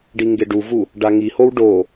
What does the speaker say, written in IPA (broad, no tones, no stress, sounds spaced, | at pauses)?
ɖ i ŋ ɡ e ɖ u v u | ɖ a ŋ i h o w ɖ o